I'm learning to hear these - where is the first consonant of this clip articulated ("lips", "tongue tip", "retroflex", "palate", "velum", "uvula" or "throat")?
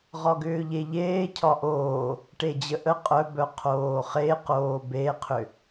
uvula